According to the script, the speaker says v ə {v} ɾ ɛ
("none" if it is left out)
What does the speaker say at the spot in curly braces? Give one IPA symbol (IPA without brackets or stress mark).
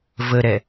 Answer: none